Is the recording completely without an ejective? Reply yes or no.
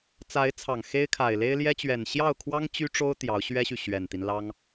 yes